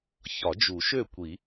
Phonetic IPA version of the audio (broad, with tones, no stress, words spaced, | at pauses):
çɒ˨˩˦d͡ʒu˨˩˦ʃø˥˩kʷi˨˩˦